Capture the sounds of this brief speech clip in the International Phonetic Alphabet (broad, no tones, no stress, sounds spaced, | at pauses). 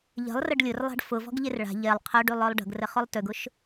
ʎ ə̤ lˠ r ə ɖ lʲ ʊ r lˠ a̤ ɖ f ʊ v ɔ̤ ɡ ʎ e r ɭ a̤ ʎ e lˠ qʰ œ ɖ y lˠ œ lˠ ɖ ə̤ ɡ r ə χ ʊ lˠ t ʏ ɡ ʊ ʃ